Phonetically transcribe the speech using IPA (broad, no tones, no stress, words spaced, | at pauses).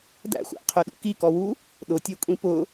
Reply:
dæ̰xʷæ̰qʰøɗṵ kikɔwu | ɗʊtʲøkʷʼĩ pʊ